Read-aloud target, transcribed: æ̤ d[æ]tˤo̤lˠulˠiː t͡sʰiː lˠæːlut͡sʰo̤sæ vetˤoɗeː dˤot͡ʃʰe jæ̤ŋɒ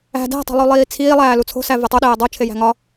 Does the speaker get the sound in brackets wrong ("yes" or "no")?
yes